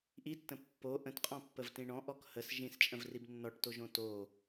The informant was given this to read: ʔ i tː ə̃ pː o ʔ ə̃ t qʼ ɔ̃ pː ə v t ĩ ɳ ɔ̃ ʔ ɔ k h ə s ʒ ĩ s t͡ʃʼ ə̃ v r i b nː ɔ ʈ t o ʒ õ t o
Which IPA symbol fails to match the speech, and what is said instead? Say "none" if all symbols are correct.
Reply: none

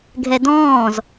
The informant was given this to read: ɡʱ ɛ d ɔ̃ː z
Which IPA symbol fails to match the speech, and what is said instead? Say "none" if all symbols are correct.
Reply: none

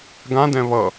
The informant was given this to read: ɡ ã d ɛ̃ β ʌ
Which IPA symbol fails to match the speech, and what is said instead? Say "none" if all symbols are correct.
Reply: none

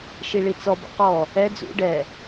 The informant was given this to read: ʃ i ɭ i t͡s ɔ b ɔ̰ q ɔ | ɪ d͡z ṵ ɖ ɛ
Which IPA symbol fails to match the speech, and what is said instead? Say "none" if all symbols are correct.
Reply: ɪ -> ɛ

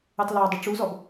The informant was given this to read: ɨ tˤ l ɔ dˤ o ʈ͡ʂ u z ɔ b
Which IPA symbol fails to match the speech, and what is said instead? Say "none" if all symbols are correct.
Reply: none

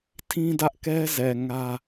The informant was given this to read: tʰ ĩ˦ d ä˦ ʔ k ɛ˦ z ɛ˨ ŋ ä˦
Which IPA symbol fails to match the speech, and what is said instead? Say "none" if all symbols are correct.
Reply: none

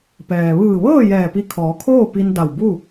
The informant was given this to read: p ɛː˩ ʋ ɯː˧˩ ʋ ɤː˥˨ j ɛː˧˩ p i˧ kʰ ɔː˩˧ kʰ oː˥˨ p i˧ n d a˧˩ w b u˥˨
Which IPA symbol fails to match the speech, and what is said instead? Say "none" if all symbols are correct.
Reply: none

